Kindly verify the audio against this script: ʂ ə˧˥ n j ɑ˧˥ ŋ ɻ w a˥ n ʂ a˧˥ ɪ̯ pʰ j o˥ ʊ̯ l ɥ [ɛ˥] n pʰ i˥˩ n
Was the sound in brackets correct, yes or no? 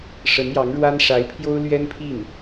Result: yes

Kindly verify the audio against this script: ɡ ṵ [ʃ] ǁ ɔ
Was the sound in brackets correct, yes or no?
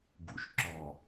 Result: yes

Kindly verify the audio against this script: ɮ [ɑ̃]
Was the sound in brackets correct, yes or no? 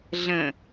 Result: no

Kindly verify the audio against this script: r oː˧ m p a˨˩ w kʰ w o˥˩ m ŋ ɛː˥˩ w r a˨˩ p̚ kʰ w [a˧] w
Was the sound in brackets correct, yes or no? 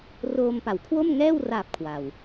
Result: no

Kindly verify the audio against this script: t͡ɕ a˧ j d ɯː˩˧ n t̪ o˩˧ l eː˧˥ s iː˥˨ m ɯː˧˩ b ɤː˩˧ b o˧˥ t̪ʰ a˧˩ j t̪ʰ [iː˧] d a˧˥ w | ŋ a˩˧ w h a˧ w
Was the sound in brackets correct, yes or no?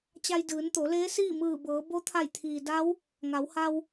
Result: no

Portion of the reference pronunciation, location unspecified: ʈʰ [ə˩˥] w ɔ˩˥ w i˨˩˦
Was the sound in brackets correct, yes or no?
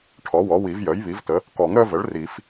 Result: no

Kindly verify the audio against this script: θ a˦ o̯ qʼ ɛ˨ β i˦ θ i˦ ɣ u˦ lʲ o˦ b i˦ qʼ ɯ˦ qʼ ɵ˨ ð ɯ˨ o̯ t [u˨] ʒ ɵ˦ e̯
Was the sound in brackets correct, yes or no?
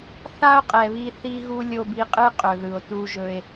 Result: no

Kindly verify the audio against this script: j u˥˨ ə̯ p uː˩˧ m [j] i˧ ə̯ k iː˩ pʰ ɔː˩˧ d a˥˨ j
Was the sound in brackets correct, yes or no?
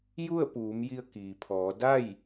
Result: yes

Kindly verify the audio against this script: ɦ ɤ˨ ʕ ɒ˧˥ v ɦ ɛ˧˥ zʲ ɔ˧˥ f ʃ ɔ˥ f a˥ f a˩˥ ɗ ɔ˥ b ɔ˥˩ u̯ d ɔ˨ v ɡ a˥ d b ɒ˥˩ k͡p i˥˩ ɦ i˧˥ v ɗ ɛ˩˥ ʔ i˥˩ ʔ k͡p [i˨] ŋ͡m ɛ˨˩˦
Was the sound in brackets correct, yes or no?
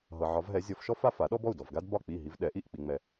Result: yes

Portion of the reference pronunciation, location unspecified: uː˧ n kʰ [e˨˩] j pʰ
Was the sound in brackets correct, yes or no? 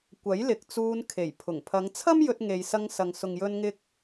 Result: yes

